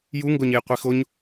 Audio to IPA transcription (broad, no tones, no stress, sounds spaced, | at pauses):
j u ŋ ɡ o ɲ e j qʷ i x o ɲ